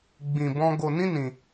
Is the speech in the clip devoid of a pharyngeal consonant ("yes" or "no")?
yes